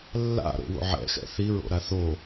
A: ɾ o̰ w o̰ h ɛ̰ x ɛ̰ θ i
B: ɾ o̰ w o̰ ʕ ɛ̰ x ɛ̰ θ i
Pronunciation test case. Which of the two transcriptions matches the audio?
B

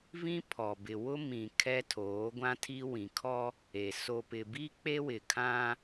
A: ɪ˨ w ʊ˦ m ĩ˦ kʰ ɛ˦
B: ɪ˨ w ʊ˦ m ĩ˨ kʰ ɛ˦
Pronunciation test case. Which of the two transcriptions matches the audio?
B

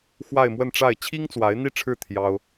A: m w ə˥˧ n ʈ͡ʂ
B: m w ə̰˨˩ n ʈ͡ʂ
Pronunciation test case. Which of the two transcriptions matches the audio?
A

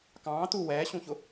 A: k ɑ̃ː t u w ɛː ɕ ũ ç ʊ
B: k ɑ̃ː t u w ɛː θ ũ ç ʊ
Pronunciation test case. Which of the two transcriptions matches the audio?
A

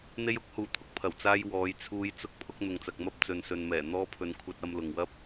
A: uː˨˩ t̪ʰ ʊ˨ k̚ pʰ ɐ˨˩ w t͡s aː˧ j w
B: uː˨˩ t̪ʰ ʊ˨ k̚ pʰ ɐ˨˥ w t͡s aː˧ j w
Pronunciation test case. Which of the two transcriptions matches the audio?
A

